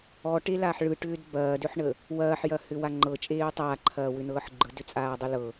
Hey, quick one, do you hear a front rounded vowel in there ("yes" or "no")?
yes